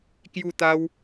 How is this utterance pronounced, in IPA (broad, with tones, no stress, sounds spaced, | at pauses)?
k j u˥˧ t̪ a˦ w